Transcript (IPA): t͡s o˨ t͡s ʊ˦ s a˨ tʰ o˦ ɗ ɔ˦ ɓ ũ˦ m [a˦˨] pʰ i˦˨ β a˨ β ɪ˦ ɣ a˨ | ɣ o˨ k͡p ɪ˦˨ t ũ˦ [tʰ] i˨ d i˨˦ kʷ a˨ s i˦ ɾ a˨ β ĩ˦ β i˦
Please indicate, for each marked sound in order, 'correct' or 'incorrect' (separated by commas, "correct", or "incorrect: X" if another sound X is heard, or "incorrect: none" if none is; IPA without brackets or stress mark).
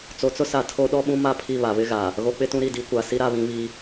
correct, incorrect: ɾ